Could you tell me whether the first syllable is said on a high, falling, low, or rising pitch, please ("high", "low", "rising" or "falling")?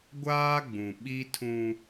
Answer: high